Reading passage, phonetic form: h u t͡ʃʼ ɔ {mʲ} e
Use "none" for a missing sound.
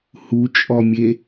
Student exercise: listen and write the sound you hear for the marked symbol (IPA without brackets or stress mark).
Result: mʲ